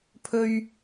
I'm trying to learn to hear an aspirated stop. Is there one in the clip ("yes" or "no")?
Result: yes